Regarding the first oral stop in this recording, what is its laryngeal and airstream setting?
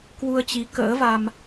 plain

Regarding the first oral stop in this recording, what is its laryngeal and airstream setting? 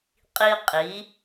ejective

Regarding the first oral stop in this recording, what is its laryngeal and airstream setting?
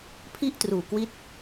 aspirated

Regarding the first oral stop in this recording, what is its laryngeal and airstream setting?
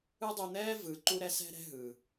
plain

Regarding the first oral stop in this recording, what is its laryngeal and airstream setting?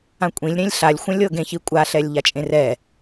ejective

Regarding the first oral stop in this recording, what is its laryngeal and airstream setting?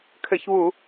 aspirated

